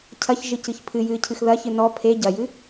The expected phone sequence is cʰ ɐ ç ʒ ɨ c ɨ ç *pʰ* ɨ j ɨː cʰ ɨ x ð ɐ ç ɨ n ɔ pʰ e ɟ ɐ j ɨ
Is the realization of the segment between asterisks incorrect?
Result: no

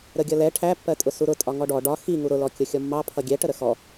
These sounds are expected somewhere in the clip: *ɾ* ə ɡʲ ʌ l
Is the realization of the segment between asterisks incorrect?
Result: no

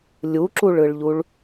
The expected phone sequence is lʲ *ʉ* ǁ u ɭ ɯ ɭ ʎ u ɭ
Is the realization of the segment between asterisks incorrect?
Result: yes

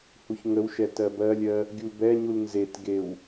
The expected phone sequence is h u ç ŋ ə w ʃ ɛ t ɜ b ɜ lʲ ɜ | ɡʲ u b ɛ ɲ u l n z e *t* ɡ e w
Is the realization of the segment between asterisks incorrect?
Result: no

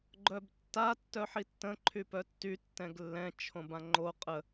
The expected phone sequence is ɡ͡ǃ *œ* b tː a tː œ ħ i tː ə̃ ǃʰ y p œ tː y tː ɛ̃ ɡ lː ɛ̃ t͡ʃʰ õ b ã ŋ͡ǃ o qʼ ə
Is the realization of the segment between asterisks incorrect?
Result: no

